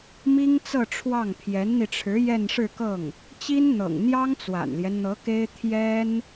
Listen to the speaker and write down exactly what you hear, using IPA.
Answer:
mi˥ŋ t͡sɤ˥˧ʈ͡ʂʰwɑ˥˩ŋ pʰjɛ˧˥nn̪i˧ʈ͡ʂʰɻ̩˧˥ jɛ˥˧nʂɻ̩˥˧kɤ˥˩ŋ | t͡ɕi˥nn̪ɤ̰˨˩ŋ n̪jɑ˥ŋt͡swa̰˨˩nljɛ˦nn̪ɤ˧˥ ke˥ɪ̯ t̪ʰjɛ˥n

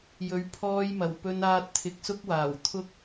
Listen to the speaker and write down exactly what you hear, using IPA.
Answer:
jɵ˨˥ɥpʰɔː˧jmɐ˨˩w pɵ˧naː˧t̚ t̪ʰɪ˨˥k̚sʊ˥k̚waː˨˩wt̪ʰʊ˥k̚

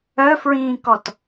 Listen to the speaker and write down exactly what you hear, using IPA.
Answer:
œfɹĩːkɔt

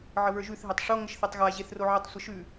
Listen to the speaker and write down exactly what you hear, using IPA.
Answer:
ʕəβə˞ʒʉθ ɦetˤʂo ŋəʃθetˤɣa ʑeθroʕətˤ sʷəʃʉ

